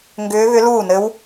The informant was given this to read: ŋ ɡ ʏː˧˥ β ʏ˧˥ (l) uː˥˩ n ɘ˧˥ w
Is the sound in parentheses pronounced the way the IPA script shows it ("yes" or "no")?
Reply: yes